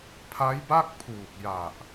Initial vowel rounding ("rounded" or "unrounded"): unrounded